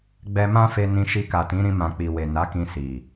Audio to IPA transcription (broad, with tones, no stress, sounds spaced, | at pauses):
ɡ͡b ɛ˧ m ã˦ f e˧ n ĩ˧ ʃ i˧ k a˨ t ĩ˨˦ ɾ ĩ˧ m ã˨ k͡p i˨ w e˨ n a˨˦ k ĩ˧ s i˨